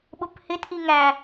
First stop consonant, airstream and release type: implosive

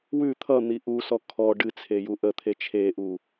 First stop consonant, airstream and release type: aspirated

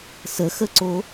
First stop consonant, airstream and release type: click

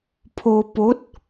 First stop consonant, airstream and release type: aspirated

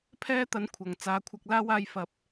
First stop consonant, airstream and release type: aspirated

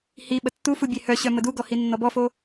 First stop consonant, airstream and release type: implosive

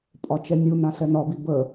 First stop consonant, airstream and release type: ejective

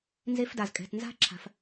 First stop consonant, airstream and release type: plain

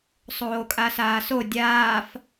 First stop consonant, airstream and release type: ejective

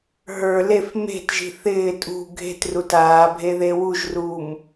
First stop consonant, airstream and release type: plain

